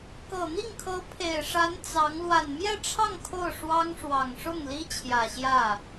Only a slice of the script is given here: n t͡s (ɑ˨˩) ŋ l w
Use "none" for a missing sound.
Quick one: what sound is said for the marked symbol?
ɑ˧˥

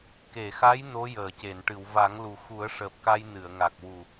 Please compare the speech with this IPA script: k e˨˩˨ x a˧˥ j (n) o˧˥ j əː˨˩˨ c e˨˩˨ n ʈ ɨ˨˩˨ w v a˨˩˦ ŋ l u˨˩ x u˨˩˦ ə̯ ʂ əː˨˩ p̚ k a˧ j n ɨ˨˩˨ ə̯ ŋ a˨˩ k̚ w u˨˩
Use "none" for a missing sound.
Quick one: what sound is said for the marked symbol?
n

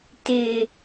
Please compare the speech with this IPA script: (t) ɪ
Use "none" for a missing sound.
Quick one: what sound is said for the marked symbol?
t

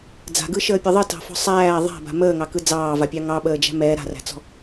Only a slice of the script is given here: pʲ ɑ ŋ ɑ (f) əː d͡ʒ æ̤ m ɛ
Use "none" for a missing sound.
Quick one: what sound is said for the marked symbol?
ɓ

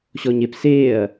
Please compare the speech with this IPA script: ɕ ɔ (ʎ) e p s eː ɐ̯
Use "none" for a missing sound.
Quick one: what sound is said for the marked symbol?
ɲ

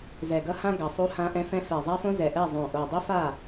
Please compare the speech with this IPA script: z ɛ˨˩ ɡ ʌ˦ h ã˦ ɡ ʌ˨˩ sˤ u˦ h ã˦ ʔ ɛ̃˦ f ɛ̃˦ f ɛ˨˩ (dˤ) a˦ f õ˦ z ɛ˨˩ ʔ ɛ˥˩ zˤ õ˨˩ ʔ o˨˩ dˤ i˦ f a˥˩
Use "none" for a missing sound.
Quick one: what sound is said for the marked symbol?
zˤ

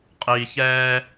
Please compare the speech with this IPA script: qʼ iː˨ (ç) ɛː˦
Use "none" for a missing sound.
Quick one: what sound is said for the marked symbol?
ç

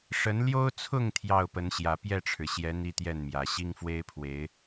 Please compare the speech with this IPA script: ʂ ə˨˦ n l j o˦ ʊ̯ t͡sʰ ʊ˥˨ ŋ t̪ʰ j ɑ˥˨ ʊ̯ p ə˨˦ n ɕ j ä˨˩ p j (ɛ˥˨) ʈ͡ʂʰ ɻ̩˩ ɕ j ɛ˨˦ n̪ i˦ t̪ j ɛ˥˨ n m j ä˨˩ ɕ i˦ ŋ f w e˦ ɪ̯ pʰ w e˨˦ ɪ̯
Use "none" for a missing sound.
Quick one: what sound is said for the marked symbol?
ɛ˥˨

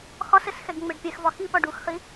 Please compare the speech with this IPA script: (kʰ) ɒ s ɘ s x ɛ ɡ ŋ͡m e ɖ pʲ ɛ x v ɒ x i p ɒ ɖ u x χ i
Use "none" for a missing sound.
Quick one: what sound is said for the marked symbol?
x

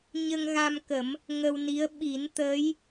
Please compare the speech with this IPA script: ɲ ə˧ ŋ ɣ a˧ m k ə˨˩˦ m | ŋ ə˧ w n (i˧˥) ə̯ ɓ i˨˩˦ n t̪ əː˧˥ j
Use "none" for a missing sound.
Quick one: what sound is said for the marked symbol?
i˧˥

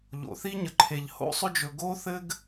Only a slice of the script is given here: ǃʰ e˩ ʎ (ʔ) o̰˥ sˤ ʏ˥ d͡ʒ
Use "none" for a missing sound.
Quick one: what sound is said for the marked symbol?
h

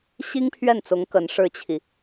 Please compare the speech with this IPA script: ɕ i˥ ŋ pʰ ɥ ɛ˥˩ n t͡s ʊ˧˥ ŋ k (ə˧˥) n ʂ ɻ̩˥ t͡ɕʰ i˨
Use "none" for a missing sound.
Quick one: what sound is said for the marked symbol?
ə˧˥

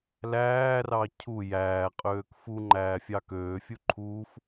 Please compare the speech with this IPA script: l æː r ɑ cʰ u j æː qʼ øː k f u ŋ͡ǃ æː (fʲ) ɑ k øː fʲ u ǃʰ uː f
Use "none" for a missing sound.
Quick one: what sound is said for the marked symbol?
fʲ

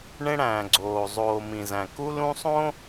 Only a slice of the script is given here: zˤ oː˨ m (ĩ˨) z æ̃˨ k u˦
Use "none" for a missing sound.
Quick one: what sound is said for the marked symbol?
ĩ˨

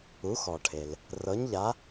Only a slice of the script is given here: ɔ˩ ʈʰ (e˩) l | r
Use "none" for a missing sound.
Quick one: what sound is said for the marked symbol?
e˩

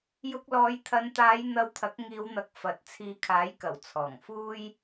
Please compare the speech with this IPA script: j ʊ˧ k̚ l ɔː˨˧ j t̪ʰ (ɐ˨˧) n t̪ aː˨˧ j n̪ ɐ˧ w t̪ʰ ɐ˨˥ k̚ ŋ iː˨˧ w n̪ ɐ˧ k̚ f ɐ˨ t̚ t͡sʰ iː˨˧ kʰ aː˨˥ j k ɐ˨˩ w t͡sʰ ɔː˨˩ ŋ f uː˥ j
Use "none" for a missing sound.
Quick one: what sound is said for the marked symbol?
ɐ˨˧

